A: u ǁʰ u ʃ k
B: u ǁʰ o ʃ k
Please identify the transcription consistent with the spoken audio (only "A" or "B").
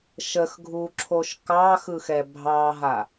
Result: B